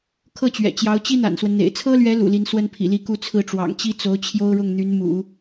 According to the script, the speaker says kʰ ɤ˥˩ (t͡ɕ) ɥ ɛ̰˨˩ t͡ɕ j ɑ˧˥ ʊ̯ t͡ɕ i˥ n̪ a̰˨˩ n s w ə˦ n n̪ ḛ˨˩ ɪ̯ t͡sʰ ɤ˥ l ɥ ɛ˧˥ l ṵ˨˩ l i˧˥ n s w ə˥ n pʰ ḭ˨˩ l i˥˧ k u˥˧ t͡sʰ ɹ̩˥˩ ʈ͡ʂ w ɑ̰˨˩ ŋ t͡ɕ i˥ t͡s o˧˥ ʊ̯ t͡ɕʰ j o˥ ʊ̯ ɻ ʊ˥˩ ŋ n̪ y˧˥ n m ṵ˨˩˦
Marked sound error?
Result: no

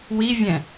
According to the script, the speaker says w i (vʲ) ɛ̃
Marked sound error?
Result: no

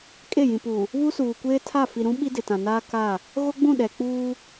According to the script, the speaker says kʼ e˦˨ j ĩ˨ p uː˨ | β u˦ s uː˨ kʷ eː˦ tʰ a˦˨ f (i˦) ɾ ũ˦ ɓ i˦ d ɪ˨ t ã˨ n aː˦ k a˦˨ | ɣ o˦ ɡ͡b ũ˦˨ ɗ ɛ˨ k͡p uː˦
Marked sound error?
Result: yes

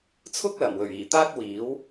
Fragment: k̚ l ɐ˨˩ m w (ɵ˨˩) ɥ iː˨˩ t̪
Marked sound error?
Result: no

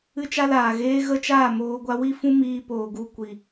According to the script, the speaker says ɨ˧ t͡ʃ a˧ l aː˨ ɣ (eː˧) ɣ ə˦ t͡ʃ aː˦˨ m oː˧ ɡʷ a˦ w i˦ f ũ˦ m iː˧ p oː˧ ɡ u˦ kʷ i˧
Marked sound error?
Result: no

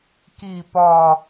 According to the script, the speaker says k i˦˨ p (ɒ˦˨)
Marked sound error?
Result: no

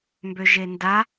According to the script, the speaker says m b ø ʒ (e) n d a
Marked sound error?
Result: no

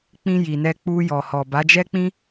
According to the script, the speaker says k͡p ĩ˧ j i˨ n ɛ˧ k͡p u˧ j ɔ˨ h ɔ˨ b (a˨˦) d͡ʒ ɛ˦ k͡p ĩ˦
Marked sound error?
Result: no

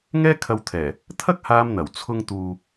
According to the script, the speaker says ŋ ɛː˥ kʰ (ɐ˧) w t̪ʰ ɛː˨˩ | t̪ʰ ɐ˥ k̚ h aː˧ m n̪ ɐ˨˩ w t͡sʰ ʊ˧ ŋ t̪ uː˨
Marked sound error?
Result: no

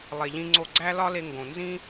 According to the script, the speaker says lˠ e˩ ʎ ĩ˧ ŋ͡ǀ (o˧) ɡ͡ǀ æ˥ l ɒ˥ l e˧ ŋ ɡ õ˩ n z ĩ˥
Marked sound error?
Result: no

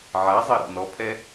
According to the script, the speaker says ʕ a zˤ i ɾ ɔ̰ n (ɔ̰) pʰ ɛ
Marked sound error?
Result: yes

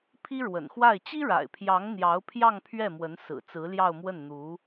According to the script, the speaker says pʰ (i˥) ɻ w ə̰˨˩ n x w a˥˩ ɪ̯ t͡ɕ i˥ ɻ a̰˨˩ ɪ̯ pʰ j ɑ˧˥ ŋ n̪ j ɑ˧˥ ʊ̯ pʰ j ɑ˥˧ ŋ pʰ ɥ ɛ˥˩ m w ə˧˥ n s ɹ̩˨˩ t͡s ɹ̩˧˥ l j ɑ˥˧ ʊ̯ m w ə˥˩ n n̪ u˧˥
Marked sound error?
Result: no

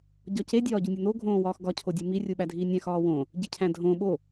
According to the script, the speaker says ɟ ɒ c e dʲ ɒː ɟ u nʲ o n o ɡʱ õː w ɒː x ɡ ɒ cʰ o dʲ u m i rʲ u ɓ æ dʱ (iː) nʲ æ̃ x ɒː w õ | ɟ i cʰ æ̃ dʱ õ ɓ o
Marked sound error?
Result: no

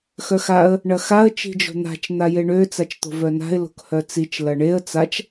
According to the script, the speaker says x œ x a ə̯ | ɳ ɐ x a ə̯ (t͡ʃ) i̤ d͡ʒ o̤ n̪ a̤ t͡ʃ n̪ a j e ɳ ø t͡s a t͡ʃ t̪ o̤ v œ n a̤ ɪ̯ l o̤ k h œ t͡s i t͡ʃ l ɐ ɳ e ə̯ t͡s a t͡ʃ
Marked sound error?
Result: no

